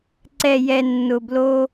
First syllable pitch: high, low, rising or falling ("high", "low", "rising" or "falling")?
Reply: low